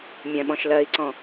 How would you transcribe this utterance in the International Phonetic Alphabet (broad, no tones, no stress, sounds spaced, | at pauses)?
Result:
mʲ ɛ̃ ɓ ɔ̃ ʃ l ɜ i̯ ǀ ɔ̃